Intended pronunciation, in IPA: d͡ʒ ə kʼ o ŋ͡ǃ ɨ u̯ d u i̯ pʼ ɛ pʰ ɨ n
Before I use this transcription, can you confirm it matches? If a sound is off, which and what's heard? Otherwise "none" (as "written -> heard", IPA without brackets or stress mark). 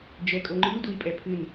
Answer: ə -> ɛ